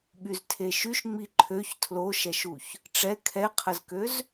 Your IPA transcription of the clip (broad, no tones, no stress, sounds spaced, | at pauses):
ɓ y z tʰ e ʃ y ʃ ŋ͡m i ǃʰ ø ç tʰ l o ʃ ɛ ʃ u ç | ʈ͡ʂ ɛ kʰ ɛ qʰ ə z k ø z